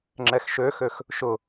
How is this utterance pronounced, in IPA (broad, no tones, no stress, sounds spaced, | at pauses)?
ŋ͡ǁ ɛ x ʃ ø x ø x | ʃ ʊ